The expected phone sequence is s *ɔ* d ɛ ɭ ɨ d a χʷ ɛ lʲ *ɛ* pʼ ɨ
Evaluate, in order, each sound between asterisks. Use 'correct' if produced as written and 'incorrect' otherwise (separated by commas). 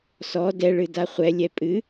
correct, correct